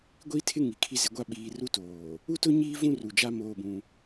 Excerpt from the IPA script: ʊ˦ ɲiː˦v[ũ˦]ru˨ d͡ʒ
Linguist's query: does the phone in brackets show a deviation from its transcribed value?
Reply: no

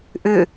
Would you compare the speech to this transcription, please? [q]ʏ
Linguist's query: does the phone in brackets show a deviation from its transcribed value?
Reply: yes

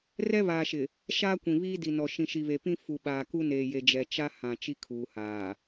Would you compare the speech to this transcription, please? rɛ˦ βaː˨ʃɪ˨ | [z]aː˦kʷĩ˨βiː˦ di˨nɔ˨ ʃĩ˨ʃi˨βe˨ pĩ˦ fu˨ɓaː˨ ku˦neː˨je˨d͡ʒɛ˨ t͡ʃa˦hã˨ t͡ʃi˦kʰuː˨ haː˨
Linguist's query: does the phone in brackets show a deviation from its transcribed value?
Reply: yes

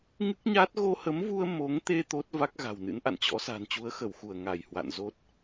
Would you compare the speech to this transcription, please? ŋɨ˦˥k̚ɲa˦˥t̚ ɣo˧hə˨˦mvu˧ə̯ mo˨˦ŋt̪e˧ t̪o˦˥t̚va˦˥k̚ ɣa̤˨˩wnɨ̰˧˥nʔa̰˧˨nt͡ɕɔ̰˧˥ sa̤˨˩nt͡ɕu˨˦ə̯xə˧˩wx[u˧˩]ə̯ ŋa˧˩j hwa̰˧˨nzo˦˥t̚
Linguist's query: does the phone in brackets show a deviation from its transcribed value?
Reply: no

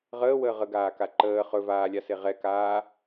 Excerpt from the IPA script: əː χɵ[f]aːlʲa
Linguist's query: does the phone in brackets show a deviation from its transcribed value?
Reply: yes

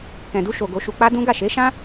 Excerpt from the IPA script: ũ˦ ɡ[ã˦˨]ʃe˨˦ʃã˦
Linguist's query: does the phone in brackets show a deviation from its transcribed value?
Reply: yes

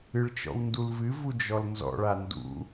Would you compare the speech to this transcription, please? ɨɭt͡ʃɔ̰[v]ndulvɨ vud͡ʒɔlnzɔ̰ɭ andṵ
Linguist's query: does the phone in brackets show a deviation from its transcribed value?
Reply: yes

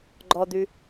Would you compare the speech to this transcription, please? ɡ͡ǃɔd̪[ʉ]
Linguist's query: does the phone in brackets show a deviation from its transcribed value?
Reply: no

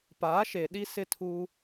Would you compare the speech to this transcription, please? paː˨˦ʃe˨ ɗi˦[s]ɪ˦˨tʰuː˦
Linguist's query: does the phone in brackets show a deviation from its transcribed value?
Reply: no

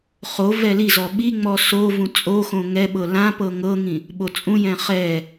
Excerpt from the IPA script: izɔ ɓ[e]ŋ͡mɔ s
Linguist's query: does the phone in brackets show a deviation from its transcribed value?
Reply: yes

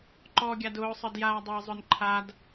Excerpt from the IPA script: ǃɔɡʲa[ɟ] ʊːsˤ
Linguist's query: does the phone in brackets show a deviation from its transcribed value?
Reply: yes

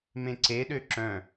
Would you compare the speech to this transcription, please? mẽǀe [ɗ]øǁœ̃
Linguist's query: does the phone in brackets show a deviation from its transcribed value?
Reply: no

